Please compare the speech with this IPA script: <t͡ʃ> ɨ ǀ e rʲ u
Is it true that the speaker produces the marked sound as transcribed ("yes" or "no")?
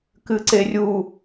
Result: no